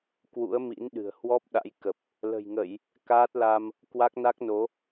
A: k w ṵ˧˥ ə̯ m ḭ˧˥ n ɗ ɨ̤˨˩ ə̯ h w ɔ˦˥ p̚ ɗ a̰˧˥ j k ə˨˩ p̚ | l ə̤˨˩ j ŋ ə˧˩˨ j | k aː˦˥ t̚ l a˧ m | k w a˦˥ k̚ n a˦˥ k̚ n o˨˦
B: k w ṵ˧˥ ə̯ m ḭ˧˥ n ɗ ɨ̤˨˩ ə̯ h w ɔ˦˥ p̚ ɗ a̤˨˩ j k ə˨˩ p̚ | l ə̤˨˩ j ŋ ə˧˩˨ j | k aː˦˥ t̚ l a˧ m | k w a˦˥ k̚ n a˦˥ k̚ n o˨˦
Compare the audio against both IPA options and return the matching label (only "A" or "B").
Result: A